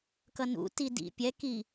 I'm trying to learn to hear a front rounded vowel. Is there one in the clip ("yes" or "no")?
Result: no